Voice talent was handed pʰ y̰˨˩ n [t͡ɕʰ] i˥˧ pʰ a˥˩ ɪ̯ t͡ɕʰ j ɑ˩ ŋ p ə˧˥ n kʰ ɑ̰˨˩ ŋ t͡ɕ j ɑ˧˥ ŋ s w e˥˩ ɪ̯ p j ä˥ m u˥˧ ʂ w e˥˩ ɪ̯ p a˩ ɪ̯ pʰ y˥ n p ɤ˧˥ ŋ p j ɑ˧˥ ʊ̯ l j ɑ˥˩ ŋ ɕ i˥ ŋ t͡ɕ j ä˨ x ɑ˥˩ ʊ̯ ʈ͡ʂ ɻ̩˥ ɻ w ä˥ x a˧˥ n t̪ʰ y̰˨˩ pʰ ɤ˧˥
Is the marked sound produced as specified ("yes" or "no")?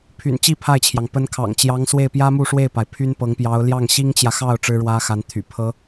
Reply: no